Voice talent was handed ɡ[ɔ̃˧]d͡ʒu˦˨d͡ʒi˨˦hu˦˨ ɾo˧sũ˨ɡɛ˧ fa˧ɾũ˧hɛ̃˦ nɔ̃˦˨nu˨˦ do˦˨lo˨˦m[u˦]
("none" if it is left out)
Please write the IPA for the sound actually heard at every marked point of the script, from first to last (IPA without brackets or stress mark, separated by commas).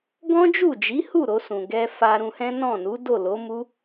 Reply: ɔ̃˦, u˦